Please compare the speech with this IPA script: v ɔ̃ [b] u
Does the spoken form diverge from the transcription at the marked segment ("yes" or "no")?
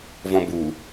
no